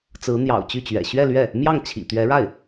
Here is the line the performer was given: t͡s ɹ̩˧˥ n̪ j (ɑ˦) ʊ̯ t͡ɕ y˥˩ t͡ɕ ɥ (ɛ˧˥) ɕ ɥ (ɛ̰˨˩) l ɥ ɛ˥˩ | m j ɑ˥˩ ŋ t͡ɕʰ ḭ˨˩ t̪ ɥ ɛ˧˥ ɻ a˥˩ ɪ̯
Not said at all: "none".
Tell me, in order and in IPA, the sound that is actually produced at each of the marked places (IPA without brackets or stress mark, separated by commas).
ɑ̰˨˩, ɛ̰˨˩, ɛ˥˧